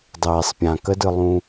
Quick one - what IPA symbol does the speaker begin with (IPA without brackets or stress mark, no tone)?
dˤ